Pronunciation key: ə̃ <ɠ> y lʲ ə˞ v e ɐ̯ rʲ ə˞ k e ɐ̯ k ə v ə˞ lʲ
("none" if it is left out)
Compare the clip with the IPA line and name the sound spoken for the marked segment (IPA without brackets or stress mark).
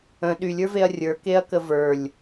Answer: ɗ